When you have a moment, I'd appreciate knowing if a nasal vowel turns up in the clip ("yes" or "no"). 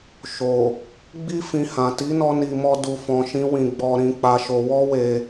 yes